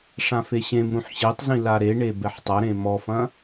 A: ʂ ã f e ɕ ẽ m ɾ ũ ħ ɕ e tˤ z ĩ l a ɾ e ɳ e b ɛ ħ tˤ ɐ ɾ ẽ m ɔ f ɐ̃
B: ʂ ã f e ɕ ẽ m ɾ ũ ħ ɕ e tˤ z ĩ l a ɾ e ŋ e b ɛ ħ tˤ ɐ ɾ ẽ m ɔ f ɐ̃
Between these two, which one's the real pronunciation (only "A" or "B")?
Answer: A